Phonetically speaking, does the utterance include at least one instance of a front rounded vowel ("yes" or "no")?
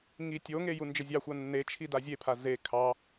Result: no